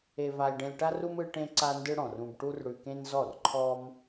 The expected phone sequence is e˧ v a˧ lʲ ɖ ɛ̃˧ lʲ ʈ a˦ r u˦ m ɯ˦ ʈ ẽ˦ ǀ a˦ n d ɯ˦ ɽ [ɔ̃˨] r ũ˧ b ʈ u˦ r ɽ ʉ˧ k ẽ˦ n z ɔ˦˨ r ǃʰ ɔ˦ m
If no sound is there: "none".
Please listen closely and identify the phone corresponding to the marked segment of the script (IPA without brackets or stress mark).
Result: ɔ̃˨